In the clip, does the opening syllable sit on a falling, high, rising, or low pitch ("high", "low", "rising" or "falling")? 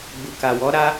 low